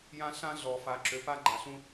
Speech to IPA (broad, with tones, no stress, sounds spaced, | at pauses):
j ã˦ ɬ ã˦ ɮ ɔ˨ f a˨ ǁ ø˨ p a˦ ɡ͡ǃ a˨ ɬ ũ˦